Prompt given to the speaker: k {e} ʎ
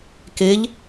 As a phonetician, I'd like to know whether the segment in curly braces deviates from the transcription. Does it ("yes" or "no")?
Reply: no